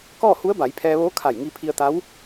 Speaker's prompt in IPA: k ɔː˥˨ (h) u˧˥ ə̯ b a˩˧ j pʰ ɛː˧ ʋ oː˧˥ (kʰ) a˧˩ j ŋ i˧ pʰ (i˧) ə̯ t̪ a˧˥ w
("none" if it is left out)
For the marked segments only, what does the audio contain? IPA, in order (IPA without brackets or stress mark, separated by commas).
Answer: h, kʰ, i˧